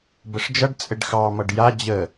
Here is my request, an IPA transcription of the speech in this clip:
b ə ʂ d͡ʒ ʌ ɖ t͡sʼ ɘ ɖ x ɑ m ʌ ɖ j a d͡ʑ ə

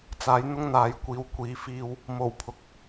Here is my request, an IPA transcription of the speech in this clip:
t͡s aː˨˥ j n̪ ʊ˥ ŋ n̪ aː˨ j kʷ iː˨ w kʷ iː˨˧ f iː˧ w | m o˨˩ w pʰ ʊ˨ k̚

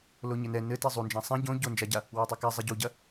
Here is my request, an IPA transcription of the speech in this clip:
l o ɲ ɘ n ɛ n ɘ t i zˤ u n d͡ʒ ã sˤ ɛ̃ ɟ õ ɟ o n d͡ʒ a ɟ a | w ɛ tˤ ɨ k a zˤ ɛ ɟ u ɟ ɐ

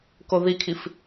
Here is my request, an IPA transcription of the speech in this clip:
k o ð i kʰ i f

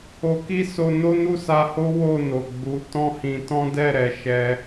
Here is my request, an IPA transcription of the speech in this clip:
o˧ k i˦ s o˧ n o˦ n u˦˨ s a˧ h o˦ w o˦˨ n o˨ ɡ͡b u˨˦ t ɔ̃˦ h ĩ˧ t ɔ̃˦ d ɛ˦˨ ɾ ɛ˨ ʃ ɛ˧

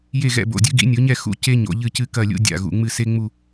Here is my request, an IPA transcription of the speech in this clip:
j e˥˨ ɣ ɛ̰˥˨ b o̰˧˩ dʲ ɨ˧˥ ɡ ḭ˩˥ nʲ o˩˥ ɲ ɛ˥˨ x ṵ˥ c e˥ ɲ o̰˩˧ ʎ ɨ˥˨ c ɨ˥˨ k ɐ˥˨ lʲ ṵ˥ dʲ a̰˧˩ ɣ ṵ˩˧ ŋ͡m ɨ˥˨ s e˥ ŋ͡m u˥˨

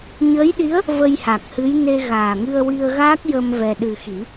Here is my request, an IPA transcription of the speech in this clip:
ɲ əː˧˥ j ɗ i˧˥ ə̯ | v ə˧ j h a˨˩ k̚ h ɨ˧˥ j n e˧ ɣ aː˨˩ ŋ ɨ˧ ə̯ w i˧ ə̯ ɣ aː˦˥ k̚ j ə˧ m v ɛ˧ ɗ ɨ˧ x i˨˩˦

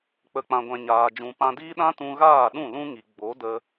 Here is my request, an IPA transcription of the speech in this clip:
k͡p ə˨ k͡p ã˨ ɡʷ ɛ̃˨ ɲ aː˨ d͡ʒ ũ˨ p ã˧ d iː˦ ɗ ã˦ t ũ˧ ɣ aː˦˨ ɗ ũ˦˨ l ũ˦ ŋ i˨ ɡ͡b o˨˦ d ə˧

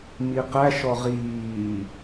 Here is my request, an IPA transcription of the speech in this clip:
m i q æ ʃ ɔ ʁ iː

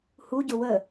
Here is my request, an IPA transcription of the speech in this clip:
h u ɟ ʊ w ə

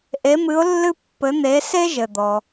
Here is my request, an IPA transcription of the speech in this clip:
ʔ e˧˥ m ɨ˧˥ ʊ̯ lː ɨ˥ pː ɘ˧˥ n̪ e˧˥ s e˥ ʒ ɘ˩ d̪ ɔ˩

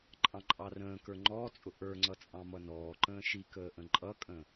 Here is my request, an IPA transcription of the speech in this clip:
ǃʼ ɑ̃ ǃʼ ɑ r ə̃ː k ə˞ ŋ͡ǃ ɔː t͡sʼ ʊ ʔ ə˞ ŋ͡ǀ ʌ t͡sʼ ɑ̃ m ʌ n ɔː ǃ ə̃ː ʃ i k əː ʔ ə̃ ǃʼ ʌ kʼ ə̃

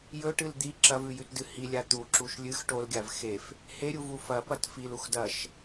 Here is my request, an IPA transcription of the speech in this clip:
j ɵ ʈ ɨ l d̪ i ǁ ɐ v ʉ j ʉ t d ɨ h i lʲ a t̪ u ǁ u ʃ lʲ ɨ x ʈ o l ɡʲ a v x e f | h e ɾʲ u v u f ɐ p ɐ t f i l u x d ɐ ʃ

